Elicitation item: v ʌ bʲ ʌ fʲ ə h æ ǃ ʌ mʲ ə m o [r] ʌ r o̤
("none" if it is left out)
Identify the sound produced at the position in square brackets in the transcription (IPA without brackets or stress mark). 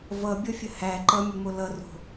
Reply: l